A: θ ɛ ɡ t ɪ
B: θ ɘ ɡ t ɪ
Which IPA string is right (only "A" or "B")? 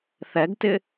A